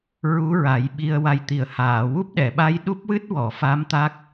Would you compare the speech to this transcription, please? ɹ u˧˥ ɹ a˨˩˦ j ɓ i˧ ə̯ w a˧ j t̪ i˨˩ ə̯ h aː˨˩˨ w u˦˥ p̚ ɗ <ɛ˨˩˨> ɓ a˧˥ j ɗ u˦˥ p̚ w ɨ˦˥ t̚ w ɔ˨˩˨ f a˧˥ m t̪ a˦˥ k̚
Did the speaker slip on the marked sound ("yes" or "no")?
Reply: no